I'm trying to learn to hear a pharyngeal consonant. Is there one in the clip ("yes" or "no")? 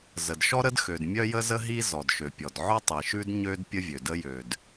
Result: yes